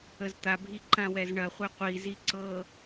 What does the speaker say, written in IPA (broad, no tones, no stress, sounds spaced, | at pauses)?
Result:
ə z t̪ a bʱ i ǃ ã w ɛ z ɳ ɐ χʷ ɛ qʷ i z i ǀ ɤ